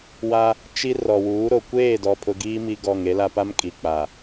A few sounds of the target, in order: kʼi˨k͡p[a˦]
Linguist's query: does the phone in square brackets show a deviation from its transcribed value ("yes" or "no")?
yes